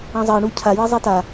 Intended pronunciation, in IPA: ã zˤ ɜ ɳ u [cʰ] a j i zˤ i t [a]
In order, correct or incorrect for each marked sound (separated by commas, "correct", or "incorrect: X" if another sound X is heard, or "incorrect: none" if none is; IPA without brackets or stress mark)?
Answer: correct, correct